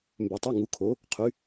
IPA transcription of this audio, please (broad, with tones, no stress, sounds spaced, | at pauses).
m b ø˩ tˤ u˩˧˩ ŋ u˩˧ kʰ o˩˧ | qʰ y˩˧